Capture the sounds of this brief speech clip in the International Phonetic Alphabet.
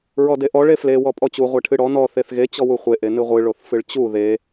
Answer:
ɹ ɔ d e ʔ ɔ ɭ e f l e w ɔ pʼ ɔ t͡ɕ u ʁʷ e ʈʰ ɨ ɽ ɔ n ɔ θ e θ ɣ e t͡ɕ ɔ w u χʷ e ʔ e n ɨ ʁʷ ɨ ɭ o θ f ɨ ɭ t͡ɕ u ð e

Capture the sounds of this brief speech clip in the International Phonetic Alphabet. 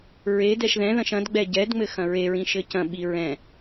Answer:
ɹ e d ɛ ʃ ð ɛ̃ ð ɐ̃ ʃ ɐ̃ d ɡ͡b ɛ ɟ ɛ d ŋ͡m ɘ x ɐ̃ ɹ e ɹ ĩ ʃ ɘ c ɐ̃ ɓ i ɹ ɛ̃

